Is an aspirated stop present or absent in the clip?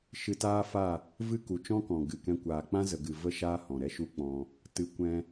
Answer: absent